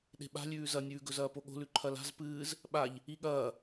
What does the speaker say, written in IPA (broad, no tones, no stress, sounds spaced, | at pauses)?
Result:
ɗ e̤ ɓ a̤ lʲ ʉː z ɐ nʲ ʉː ɡ ɵ z ɐː p o ɠ o̤ l ʉ ǃʰ ɐ l a̤ z p ɨː z | ɓ a ʎ | i ɠ ɐː